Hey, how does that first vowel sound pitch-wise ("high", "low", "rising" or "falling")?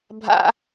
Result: high